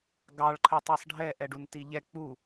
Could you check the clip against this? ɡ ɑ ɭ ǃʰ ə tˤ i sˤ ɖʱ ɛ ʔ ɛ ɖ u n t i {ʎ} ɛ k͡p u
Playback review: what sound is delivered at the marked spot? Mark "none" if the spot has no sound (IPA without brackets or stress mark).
ʎ